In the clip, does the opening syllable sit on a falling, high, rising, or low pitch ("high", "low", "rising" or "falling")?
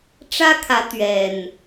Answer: high